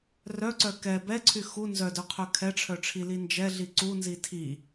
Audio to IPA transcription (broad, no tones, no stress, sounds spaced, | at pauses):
r œ ǀ œ k ɛ b ɛ ǀʰ y x u n z œ d œ qʰ œ kʰ ɛ ʈ͡ʂʰ œ ʈ͡ʂʰ i l i n d͡ʒ ɛ ɮ i ǀ u n z i tʰ i